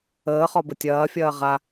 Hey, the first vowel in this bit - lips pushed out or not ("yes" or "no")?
no